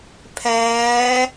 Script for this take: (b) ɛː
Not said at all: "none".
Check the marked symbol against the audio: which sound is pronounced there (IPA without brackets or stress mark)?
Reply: pʰ